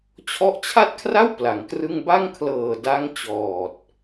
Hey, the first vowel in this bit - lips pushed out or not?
yes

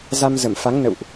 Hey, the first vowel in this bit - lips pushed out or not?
no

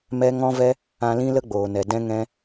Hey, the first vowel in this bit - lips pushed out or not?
no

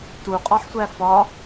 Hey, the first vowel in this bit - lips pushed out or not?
yes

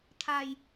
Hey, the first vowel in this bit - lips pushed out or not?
no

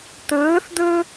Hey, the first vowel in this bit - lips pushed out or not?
no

